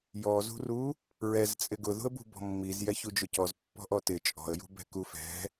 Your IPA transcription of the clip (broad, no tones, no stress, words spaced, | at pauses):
jɔzṳru | ɹɛzt͡sʼɪ ɡʊðṳə̯bṳ bɔ̤mːizjɛ çud͡ʒʊcɔz pːɔ̤ʔɔtɪ t͡ʃʼɔ̤ə̯jṳbɛ̤ kufɛ̤